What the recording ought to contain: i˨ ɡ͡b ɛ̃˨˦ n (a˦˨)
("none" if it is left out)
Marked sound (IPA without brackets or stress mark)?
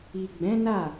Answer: a˦˨